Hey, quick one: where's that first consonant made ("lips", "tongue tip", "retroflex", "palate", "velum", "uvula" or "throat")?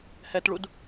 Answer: throat